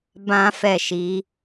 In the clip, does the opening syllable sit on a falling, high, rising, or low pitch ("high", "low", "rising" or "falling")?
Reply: high